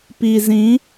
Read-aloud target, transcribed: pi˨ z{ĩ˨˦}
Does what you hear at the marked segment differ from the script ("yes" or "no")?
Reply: no